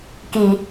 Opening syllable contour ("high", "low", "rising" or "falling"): low